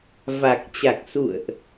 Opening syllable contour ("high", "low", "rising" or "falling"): low